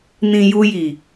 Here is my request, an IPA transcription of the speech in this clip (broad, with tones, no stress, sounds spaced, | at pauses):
n ĩ˨ j u˧ j i˨